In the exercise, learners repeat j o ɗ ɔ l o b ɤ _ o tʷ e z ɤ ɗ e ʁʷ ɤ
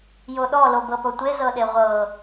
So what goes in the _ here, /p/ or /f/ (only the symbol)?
p